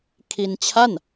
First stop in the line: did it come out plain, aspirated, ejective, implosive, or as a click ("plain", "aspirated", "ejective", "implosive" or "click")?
aspirated